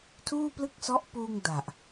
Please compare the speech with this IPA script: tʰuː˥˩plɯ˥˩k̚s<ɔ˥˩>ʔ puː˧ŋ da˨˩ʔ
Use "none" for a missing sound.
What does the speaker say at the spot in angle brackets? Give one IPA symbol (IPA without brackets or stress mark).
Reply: ɔ˦˥